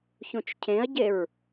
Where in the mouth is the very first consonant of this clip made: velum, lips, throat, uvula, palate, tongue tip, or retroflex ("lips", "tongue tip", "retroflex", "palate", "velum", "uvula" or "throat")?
palate